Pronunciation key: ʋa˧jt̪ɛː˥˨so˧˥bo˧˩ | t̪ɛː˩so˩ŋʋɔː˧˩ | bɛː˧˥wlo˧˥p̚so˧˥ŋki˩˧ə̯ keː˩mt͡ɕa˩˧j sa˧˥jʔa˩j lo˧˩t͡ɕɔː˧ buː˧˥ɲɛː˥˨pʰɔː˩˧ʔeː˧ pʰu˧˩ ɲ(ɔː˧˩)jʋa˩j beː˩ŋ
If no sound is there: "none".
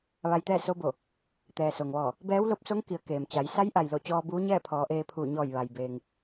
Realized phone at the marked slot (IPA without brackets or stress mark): ɔː˧˩